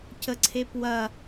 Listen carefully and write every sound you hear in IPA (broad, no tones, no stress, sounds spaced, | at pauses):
c ə ǀʰ e p w ɐ